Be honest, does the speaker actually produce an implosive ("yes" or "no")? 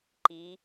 no